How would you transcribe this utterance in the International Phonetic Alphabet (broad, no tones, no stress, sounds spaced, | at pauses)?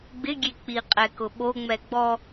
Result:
ɡ͡b ɪ ɡʲ e k͡p i qʼ ɛ k ʊ ɓ o ŋ͡m ɛ ɡ͡b ɔ